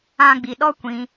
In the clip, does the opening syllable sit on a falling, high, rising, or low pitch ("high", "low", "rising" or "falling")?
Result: high